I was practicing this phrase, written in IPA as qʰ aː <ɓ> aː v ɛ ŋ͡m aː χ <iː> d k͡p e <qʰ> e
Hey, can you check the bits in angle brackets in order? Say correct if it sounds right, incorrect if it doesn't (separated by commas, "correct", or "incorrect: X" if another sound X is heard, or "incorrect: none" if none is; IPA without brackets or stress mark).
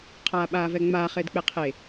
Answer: correct, incorrect: ɪː, correct